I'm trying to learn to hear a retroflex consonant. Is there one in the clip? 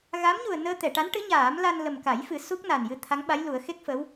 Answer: yes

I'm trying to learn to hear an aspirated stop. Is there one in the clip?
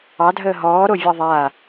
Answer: no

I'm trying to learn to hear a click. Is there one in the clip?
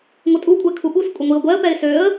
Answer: no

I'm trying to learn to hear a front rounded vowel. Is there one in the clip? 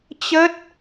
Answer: no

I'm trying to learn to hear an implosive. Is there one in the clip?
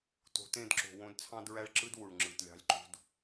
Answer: no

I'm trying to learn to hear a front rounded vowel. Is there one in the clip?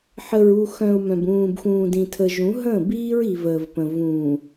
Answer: yes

